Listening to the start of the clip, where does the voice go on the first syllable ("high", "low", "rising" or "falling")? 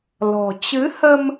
low